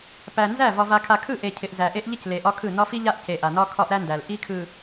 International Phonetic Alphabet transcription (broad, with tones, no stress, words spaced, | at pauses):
pæ˨nzæ˦˨ vɒ˨va˨kʰa˨kʰɯ˦˨ ʔe˨cʰɪ˨ʔ zæ˨ʔe˦ʔʎɪ˦c le˨ʔɒ˦kʰɯ˦˨ nɒ˦fi˦ʎa˦ʔ ce˨ʔa˨nɒ˦ kʰɒ˦ʔɾæ˦ndæ˨l ʔi˦kʰɯ˨